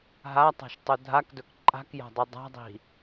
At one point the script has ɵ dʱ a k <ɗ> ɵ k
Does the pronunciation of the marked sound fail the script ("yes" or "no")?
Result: yes